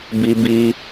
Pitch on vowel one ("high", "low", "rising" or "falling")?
high